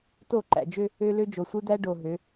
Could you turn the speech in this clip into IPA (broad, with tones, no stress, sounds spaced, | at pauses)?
t o˦˨ ǃ æ̰˨ d͡ʒ ø˦ | ø˦ l ø˦ d͡ʒ o˨ sʷ ɯ˦ d̪ æ˦ ɖ o˨ ɦ ø˨˦